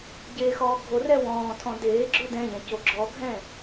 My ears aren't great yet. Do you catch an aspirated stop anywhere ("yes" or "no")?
yes